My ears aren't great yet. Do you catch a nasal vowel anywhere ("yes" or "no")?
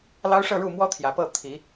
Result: no